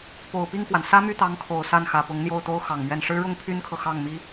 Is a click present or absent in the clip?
absent